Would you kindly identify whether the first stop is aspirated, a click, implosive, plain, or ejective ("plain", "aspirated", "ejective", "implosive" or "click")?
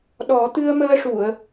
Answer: implosive